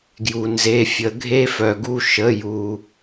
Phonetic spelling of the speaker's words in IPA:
ɡ j u˩ n z e˩˧˩ fʲ ə˨˩˦ ɡʱ e˦ f œ˩ ɡ u˦˨ ʃ ə˩˧˩ j u˩

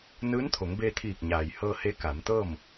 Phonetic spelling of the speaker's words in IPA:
n ɯː˧˥ n t̪ʰ o˩˧ ŋ b eː˧ t̪ʰ iː˧˩ k̚ ɲ aː˩ j h ɤː˧ h e˧˥ k a˩˧ m t̪ ɤː˥˨ m

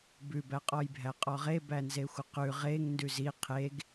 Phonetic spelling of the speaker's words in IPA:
b ʉ b æ qʼ ɔ j bʱ æ qʼ ɔ ʁ e b æ n z e xʷ ə q ʉ ʁ e ŋ n d ʉ z i qʰ e ɡ

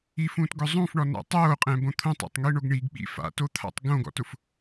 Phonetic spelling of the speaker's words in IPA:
i f ũː t ɡ ʊ zˤ ũ f ɳ ɔ n a̰ tˤ oː qʼ ɛ̃ b õ t̪ʰ õ tˤ ɔ̰ tˤ ŋ i ɳ o ɡ ɳ i ɡ ɓ ḭ f a̰ t o t̪ʰ a̰ tˤ ɡ õ ɡ ɔ̰ t ʊ f

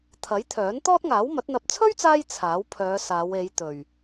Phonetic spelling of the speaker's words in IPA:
t̪ʰ ɐ˨˥ j t̪ʰ œː˨˥ n t̪ ɔː˥ t̚ ŋ aː˨˥ w m ɐ˨˥ t̚ n̪ ɐ˧ p̚ t͡sʰ ɵ˥ ɥ t͡s aː˧ j t͡sʰ aː˨˥ w pʰ œː˨˧ s aː˨˧ w e˨˧ j t̪ ɵ˨ ɥ

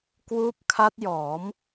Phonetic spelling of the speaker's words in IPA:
k w uː˦˥ p̚ kʰ a˦˥ t̚ j ɔː˩˦ m

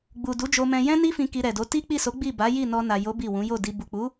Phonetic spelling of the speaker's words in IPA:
ɡ͡b u˨ d u˨˦ d͡ʒ o˧ m ɛ̃˧ j ɛ̃˦ n i˦ f ĩ˧ k i˧ ɾ ɛ˨ d o˨˦ t i˦ k͡p i˦˨ s o˨˦ ɡ͡b i˦˨ b a˨˦ j i˦˨ n ɔ˧ n a˨ j o˨˦ b i˦˨ w ũ˨˦ j o˦˨ d i˧ b u˨ k͡p u˨˦

